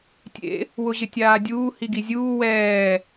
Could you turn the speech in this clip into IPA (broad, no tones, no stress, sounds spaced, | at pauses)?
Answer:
tʲ ḛ | w ʊ ʑ ɪ tʲ aː dʲ uː h i ɡ i zʲ uː w ɛː